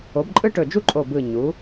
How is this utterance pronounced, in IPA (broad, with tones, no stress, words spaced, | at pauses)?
o˩˧bǃʼɯ˧ʈɵ˨˩d͡ʒu˧ ǃʼo˨˩bɯ˨˩ɲu˩˧